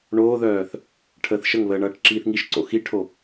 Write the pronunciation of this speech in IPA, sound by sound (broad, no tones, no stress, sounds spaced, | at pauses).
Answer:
ɳ oː ð œː θ | ʈʰ əː θ ʃ ə ŋ β əː ɳ ʌː ʈ ǁ iː θ ŋ i ʃ ǀ o̰ x i ʈʰ o